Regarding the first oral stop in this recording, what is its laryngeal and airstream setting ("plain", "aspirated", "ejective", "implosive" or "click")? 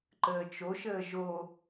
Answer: click